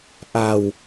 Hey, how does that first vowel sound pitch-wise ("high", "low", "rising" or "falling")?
low